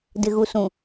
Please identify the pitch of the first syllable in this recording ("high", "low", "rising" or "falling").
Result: low